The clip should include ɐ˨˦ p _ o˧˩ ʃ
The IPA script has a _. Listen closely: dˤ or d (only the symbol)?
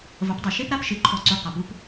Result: dˤ